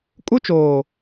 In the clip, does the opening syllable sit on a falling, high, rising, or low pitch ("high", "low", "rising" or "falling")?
high